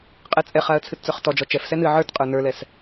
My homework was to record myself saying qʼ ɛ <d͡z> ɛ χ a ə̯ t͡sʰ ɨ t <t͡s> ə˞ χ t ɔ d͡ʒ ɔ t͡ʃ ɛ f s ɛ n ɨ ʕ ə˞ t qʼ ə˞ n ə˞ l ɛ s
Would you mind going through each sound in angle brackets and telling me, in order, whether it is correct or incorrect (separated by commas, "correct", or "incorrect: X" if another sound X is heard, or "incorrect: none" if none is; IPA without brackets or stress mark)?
incorrect: t͡sʼ, correct